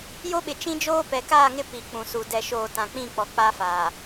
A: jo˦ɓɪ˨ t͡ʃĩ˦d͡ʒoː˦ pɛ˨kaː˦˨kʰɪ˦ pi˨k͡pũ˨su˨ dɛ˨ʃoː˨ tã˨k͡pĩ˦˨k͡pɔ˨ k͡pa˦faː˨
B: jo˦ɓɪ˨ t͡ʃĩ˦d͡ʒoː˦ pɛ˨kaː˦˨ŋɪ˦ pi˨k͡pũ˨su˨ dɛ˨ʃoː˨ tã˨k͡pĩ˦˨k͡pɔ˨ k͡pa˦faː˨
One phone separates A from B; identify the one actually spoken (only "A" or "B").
B